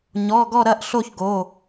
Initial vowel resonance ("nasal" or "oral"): oral